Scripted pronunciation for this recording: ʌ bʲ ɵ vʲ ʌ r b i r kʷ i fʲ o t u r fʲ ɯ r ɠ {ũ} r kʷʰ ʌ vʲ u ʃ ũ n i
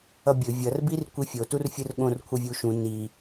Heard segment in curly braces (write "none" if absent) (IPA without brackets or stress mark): õ